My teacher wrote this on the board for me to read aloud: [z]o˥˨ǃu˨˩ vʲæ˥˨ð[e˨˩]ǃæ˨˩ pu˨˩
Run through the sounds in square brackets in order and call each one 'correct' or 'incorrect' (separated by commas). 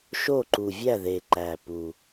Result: incorrect, correct